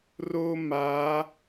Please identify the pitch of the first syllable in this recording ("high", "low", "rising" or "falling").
high